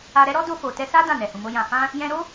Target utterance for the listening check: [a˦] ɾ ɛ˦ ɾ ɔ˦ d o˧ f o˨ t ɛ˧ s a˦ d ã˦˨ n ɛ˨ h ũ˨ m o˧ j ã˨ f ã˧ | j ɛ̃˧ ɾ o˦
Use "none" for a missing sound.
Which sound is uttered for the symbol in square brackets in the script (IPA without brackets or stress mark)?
a˧